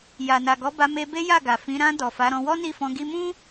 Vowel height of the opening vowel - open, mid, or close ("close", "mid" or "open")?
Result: open